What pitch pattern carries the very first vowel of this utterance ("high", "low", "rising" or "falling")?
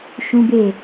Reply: high